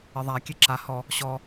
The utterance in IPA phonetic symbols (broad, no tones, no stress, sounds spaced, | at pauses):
ɪ ðˤ a kʲ e ǁ a h ɔ | ɕ ɔ